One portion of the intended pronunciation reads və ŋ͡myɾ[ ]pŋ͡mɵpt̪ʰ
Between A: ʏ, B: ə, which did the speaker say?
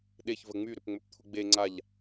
A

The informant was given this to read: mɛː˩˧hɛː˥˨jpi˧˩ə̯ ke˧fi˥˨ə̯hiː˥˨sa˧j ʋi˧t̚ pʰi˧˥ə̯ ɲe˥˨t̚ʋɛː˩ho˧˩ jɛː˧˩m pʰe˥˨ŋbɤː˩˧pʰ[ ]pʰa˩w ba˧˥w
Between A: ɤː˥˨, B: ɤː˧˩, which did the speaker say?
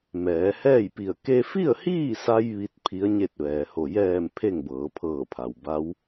B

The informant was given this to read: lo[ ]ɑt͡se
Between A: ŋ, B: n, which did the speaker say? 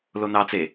B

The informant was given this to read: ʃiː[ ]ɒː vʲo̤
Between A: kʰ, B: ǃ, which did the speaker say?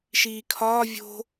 A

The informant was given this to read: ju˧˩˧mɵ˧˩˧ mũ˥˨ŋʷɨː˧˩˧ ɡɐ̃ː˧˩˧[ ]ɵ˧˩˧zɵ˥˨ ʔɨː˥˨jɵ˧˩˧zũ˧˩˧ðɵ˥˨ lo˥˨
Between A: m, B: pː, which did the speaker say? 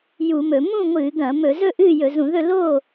A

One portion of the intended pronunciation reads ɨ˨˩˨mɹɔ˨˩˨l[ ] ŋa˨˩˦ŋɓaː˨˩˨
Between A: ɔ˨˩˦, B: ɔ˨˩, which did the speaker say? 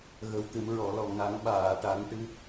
B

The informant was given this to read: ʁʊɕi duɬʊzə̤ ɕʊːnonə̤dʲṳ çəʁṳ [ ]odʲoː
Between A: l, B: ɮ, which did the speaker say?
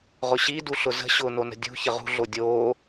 B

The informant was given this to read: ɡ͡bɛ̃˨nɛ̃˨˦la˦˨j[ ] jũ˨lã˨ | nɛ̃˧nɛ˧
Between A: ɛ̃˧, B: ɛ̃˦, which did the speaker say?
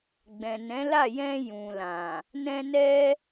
A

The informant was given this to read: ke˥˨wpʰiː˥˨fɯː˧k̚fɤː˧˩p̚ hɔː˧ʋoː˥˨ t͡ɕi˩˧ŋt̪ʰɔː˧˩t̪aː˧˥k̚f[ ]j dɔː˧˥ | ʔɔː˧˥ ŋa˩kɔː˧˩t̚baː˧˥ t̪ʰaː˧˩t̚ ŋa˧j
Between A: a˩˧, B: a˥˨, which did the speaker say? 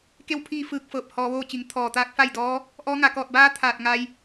B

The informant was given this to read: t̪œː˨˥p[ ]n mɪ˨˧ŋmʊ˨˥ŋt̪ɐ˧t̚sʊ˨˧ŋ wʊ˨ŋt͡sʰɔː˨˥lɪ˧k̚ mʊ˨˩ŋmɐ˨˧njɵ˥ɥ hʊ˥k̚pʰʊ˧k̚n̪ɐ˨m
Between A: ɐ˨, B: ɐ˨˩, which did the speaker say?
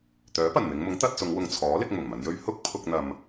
B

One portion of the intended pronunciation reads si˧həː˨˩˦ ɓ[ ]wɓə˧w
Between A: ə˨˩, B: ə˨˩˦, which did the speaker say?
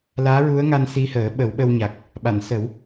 B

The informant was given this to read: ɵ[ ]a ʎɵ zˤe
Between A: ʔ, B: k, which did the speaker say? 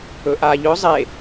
A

